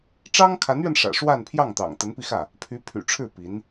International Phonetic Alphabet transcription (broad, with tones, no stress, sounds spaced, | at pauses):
ʈ͡ʂ ɑ˥ ŋ kʰ a˧˥ n ɥ ɛ˧ n ʂ ä̰˨˩ ʂ w a˥˧ n pʰ j ɑ˥˩ ŋ t̪ ɑ̰˨˩ ŋ t̪ ə˧˥ n p i˧ x ä˥˩ | pʰ y˧˥ pʰ y̰˨˩ ʈ͡ʂʰ ɻ̩˥˩ p i˧˥ n